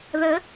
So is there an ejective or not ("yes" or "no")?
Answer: no